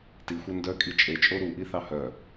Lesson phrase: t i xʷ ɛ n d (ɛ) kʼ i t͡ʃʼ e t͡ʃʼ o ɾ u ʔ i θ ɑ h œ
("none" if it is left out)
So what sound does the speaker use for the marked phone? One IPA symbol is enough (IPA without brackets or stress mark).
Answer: œ